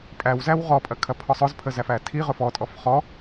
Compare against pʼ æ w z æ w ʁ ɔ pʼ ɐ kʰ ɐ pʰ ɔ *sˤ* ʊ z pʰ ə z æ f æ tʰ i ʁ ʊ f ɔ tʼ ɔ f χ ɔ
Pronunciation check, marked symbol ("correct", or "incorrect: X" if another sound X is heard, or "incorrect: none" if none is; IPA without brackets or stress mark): correct